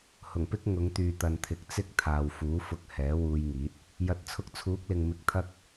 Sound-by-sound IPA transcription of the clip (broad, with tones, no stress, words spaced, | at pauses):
hʊ˨˩ŋpɪ˥k̚ ŋʊ˨˧ŋt̪yː˨t̪ɐ˨nt̪ʰɪ˨k̚ t͡sɪ˥k̚t̪ʰaː˨wfuː˨˥ fʊ˨k̚ hɛː˨˥wuː˧jŋiː˨˥t̚ | jɐ˨t̚t͡sʰʊ˧k̚t͡sʰuː˨˥k̚lɪ˨ŋ mɪ˧k̚t̪ʰɐ˥k̚